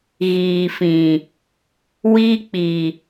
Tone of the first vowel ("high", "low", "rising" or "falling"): low